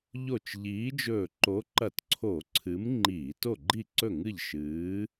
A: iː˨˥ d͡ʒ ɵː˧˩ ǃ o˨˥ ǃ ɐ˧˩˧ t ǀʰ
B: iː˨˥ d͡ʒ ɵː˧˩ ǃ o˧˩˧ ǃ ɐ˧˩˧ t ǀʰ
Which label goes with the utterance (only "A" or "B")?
A